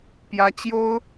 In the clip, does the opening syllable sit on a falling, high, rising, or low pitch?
rising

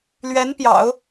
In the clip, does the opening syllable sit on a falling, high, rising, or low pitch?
rising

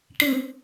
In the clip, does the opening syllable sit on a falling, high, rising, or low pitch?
low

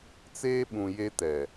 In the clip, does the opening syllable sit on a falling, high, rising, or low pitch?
high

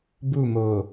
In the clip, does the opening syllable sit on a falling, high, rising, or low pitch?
falling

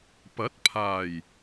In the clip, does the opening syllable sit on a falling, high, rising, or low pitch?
rising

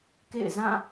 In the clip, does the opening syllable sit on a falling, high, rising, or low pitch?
falling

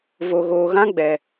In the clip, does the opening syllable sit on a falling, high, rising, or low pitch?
low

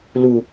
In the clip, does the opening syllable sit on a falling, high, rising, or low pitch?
low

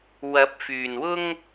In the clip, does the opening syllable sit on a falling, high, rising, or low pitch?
rising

